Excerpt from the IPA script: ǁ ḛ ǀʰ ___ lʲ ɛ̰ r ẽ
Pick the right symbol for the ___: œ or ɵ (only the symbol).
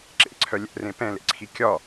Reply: œ